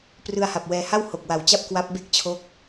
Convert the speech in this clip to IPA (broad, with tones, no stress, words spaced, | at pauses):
prɯ˧a̯ha˨˩p̚ wɛː˧ ha˥˩w ho˨˩k̚wa˨˩wt͡ɕa˥˩p̚ kwa˦˥p̚ be˥˩k̚t͡ɕʰo˦˥k̚